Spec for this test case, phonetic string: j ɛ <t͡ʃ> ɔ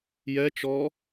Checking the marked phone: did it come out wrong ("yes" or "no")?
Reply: no